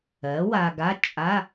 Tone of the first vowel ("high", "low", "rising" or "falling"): rising